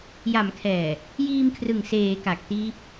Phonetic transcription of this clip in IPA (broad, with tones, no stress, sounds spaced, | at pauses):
j a˩˦ m kʰ ɛː˨˩ | j iː˧ m kʰ r ɯ˨˩ ŋ s eː˩˦ k a˨˩ k̚ t iː˦˥ p̚